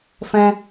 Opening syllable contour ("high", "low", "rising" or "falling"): high